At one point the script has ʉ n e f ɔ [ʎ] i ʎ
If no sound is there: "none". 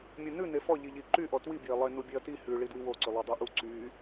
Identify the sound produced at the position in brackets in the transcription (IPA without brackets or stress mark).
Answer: ʎ